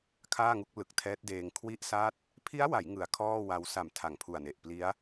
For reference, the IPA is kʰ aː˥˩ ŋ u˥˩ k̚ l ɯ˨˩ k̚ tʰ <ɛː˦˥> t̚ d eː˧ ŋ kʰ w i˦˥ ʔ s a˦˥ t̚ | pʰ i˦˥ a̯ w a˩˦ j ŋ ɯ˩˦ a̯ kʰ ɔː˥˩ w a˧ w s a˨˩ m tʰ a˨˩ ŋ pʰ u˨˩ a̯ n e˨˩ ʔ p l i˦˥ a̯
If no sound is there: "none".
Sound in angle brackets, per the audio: ɛː˦˥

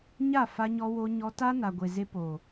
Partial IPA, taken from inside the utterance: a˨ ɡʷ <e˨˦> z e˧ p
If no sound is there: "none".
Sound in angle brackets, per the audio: e˨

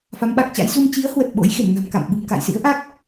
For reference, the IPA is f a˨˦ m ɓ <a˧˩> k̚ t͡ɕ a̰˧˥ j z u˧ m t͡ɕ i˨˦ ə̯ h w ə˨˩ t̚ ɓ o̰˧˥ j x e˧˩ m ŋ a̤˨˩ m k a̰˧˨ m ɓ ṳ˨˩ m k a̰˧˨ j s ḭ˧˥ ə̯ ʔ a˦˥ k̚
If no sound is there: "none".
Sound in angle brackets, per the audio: a˨˩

